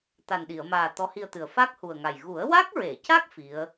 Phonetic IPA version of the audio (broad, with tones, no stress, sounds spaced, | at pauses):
t̪ a˨˩ n ɗ i˨˩˨ ə̯ m aː˨˩ t̪ ɔ˧˥ h i˧ ə̯ t̪ ɨ˨˩ ə̯ f a˦˥ k̚ h u˨˩ ə̯ ŋ a˨˩ j ɣ u˨˩˦ ə̯ w a˦˥ k̚ ɹ e˨˩˨ c a˦˥ k̚ f i˧˥ ə̯